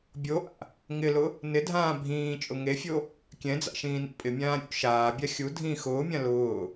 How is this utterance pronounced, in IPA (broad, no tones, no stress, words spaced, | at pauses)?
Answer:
bʲoʔa̰ | ŋɪlʊ | nɪdʱãː bʱĩː t͡ʃʼʊŋefʲo | kʲɛ̃d͡za̰ ʃĩːnḭpʼɪmʲãː ɾʲo̰ ʃaːbʲa xʲu dʱĩ xʊːmʲã lʊː